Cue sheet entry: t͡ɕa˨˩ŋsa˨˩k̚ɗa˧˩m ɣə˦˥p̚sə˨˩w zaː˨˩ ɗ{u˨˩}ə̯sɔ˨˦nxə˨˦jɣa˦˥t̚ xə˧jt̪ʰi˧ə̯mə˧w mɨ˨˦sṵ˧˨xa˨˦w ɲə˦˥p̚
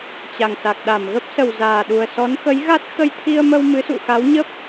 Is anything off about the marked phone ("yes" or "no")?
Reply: no